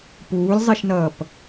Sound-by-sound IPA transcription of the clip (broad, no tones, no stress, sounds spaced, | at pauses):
p uː lʲ zˤ i ʃ n ʌː p